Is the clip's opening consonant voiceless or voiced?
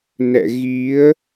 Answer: voiced